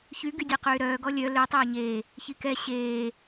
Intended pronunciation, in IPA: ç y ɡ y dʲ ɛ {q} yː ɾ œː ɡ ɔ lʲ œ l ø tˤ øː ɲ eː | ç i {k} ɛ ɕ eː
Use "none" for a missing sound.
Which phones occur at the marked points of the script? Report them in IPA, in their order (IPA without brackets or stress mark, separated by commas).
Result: q, k